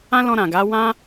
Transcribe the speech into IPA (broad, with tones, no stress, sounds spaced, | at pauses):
ã˦ l ɔ̃˧ ɾ ã˨ ɡ a˨˦ w ã˦